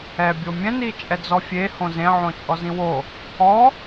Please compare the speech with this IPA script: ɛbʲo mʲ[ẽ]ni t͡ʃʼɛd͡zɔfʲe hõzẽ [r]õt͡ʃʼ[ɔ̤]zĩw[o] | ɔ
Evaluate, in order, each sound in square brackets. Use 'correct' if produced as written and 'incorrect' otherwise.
incorrect: ɛ̃, incorrect: ʕ, incorrect: ɔ, correct

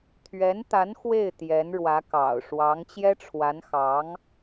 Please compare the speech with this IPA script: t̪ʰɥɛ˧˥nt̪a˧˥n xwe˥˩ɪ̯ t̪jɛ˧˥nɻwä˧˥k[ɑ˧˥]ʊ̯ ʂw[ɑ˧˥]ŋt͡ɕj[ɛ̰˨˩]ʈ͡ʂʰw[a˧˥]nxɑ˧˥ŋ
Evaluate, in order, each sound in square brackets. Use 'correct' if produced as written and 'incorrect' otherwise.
incorrect: ɑ̰˨˩, correct, incorrect: ɛ˥, correct

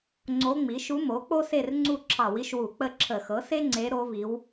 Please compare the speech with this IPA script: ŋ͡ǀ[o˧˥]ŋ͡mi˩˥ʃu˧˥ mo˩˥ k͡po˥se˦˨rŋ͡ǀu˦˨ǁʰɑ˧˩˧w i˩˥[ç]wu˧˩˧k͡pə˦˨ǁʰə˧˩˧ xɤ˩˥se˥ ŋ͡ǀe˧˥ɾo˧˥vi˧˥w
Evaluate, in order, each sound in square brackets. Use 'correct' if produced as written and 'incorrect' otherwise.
correct, incorrect: ʃ

